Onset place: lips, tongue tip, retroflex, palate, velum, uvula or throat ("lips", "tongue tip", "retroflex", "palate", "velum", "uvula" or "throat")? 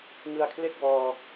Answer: velum